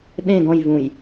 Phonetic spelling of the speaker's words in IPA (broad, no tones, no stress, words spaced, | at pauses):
ɗẽ ɡɔ̃jvũj